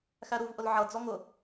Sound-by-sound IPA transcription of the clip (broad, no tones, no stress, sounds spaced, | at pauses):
x æ ɾ u v ʔ ʊ l ʕ ʌ d͡z ɔ ŋ ʊ